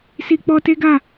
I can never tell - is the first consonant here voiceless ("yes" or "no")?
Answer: yes